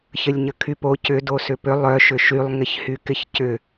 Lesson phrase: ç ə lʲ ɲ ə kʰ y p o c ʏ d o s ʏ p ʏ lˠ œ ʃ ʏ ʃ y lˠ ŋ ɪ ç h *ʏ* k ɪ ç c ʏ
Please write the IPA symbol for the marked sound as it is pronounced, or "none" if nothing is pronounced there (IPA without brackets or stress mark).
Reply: y